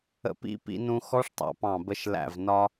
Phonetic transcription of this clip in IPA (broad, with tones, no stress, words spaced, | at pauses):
ə̰˧pḭ˦˥pḭ˧nũ˧ xɔ˦˥ʂtˤɑ̰˧pɑ̃˧˩ bə˧ʃ læ̰˧˩v nɒ˧